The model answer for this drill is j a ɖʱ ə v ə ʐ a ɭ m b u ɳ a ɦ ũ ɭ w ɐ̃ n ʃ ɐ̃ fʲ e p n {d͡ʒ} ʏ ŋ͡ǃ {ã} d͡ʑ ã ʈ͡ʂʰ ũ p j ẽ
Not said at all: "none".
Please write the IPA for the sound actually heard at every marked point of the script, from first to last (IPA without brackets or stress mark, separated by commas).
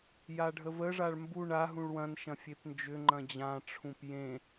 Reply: d͡ʒ, ɐ̃